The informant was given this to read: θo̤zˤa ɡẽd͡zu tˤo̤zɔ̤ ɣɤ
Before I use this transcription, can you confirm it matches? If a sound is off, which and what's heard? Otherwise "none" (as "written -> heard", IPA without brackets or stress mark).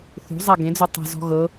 none